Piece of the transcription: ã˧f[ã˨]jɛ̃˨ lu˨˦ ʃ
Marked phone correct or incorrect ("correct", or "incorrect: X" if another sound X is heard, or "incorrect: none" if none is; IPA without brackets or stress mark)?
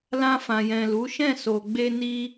correct